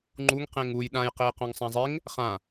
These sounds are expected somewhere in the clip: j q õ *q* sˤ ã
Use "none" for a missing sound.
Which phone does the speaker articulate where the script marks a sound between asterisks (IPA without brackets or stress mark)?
ŋ